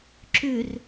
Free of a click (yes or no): no